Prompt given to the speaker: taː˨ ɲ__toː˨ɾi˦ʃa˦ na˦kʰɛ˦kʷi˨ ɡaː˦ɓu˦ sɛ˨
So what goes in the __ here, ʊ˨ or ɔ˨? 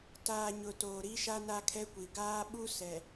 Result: ʊ˨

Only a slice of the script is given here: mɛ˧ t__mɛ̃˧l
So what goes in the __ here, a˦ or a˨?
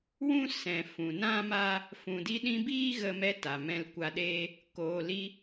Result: a˨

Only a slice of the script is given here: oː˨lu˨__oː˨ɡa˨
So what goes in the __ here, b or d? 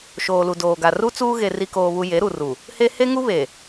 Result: d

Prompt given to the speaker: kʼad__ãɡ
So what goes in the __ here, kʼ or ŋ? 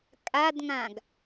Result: ŋ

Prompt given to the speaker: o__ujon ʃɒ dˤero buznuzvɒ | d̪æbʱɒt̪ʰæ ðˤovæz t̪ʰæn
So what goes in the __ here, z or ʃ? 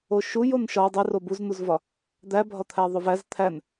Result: ʃ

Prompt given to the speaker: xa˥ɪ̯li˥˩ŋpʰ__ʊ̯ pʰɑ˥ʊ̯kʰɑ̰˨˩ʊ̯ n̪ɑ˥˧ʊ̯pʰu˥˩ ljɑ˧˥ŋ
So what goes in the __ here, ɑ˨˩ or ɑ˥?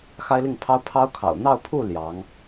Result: ɑ˥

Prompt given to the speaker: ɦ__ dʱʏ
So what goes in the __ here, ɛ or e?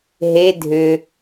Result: e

